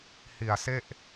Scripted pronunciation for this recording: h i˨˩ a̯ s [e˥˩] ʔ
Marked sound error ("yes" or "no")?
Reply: no